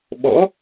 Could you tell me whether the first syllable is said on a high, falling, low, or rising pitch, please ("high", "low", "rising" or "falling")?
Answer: rising